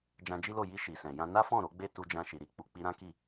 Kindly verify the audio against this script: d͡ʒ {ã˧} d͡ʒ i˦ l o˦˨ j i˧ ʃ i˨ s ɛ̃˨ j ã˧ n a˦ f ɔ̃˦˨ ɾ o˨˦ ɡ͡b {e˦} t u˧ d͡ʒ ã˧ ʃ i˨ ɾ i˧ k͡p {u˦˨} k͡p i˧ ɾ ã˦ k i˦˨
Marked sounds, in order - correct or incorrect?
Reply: correct, correct, incorrect: u˨

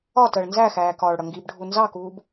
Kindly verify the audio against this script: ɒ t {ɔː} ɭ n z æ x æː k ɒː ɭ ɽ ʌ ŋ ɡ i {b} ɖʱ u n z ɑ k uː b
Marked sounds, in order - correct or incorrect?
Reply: incorrect: əː, correct

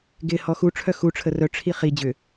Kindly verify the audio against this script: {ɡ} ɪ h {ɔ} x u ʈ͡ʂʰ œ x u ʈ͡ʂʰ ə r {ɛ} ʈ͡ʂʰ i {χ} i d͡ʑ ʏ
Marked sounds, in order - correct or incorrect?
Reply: correct, correct, incorrect: œ, correct

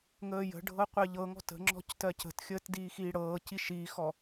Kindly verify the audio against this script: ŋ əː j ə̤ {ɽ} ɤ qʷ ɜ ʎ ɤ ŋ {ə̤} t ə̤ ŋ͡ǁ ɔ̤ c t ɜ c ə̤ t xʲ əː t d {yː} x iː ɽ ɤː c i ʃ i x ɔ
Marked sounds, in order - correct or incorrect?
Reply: incorrect: ɖʱ, incorrect: ɔ̤, incorrect: iː

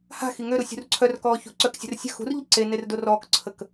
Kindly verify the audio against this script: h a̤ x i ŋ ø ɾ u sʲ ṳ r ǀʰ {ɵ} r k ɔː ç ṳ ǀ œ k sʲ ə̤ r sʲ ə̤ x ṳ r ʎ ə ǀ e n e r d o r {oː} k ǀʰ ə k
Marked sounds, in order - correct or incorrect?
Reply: incorrect: œ, incorrect: ɔː

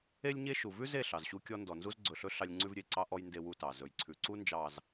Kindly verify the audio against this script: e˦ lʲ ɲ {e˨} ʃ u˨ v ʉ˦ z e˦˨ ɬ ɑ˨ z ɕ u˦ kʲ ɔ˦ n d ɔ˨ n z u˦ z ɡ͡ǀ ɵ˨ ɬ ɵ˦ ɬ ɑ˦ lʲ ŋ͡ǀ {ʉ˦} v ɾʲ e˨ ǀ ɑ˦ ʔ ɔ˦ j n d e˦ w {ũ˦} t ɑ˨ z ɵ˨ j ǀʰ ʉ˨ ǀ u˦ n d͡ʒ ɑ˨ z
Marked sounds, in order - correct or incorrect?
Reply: incorrect: e˦, correct, incorrect: u˦

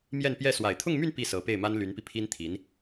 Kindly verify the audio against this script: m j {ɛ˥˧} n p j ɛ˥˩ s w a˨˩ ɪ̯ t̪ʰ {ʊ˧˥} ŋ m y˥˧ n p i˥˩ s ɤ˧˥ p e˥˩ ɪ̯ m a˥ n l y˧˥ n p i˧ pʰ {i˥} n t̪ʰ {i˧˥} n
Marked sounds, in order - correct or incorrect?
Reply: correct, incorrect: ʊ˥˧, correct, correct

